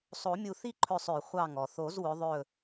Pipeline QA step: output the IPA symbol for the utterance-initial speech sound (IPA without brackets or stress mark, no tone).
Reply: sˤ